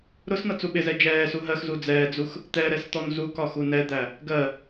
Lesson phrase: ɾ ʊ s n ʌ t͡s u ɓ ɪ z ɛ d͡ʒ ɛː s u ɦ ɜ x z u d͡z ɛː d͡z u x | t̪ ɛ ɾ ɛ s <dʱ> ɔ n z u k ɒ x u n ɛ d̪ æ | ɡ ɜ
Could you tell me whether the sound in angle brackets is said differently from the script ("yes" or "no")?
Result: yes